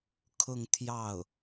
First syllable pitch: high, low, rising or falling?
falling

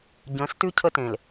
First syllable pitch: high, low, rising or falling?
rising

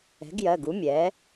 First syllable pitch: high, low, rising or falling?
rising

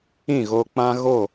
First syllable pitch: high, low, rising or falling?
falling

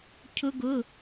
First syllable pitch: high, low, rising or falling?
high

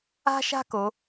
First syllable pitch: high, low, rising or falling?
high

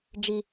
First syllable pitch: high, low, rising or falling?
high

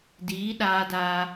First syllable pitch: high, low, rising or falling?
rising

